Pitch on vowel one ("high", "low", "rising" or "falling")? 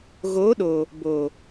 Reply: rising